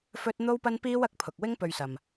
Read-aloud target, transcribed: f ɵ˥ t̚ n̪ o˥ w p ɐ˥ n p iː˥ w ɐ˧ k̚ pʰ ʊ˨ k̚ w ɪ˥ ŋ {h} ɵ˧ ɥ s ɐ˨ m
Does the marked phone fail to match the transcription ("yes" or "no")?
yes